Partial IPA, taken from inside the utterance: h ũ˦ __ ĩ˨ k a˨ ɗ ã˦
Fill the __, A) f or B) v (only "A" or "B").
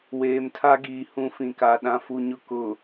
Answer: A